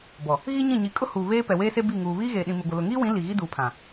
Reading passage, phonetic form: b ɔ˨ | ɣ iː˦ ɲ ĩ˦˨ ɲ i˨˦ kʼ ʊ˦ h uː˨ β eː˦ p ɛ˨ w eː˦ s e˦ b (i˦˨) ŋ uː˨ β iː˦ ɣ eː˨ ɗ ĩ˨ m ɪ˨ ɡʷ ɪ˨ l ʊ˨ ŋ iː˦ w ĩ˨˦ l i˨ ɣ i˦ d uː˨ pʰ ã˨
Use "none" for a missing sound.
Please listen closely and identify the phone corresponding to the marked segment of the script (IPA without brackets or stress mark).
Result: i˦˨